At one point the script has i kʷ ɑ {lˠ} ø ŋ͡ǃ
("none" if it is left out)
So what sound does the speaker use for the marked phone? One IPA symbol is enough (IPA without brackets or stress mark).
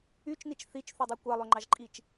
lˠ